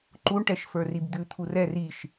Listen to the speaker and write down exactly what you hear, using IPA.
ǃ u ɳ ʈ ɛ ʃ f ə˞ r i b d̪ ʉ t̪ʰ u r ɛ r i ʃ

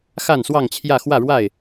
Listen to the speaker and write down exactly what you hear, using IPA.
x a˥˨ n s w ɑ˥˨ ŋ t͡ɕʰ j ä˥˨ x w ä˥˨ ɻ w a˥˨ ɪ̯

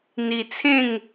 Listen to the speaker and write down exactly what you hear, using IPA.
n̪ i˧ t͡sʰ ẽ˥˧ ŋ

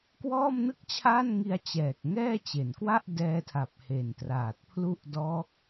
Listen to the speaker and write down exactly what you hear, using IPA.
k w ɔː˥˩ m n ɯ˥˩ k̚ t͡ɕʰ aː˥˩ n ŋ i˧ a̯ t͡ɕ ɛː˨˩ k̚ ŋ ɛː˥˩ t͡ɕ e˩˦ n k w a˥˩ ʔ d ɛː˧ tʰ a˨˩ p̚ h e˨˩ n t r aː˨˩ t̚ pʰ l u˥˩ ʔ d ɔː˦˥ k̚

